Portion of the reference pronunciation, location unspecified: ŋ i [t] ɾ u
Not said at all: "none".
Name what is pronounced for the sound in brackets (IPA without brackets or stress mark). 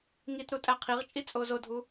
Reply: t